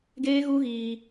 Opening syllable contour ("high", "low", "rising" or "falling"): high